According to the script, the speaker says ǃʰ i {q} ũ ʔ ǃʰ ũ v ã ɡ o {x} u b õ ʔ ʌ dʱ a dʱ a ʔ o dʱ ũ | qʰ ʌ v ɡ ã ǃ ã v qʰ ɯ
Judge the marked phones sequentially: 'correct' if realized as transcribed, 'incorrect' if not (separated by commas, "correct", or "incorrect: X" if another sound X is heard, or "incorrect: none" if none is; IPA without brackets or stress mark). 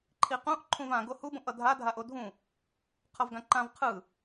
correct, incorrect: h